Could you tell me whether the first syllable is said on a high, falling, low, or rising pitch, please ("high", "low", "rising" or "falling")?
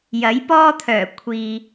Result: rising